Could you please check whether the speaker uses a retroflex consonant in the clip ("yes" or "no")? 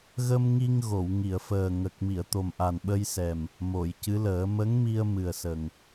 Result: no